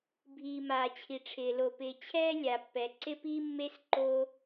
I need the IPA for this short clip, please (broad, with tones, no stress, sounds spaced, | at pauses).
bʱ iː˩ m aː˩ t͡ɕʰ i˩ ʈ͡ʂʰ ɪː˩ l o˩ p ɪː˩ t͡ɕʰ ɛː˥ lʲ a˩ pː ɛ˩ ǀ ɪ˥ p iː˥ mː e˥ s ǃ o˥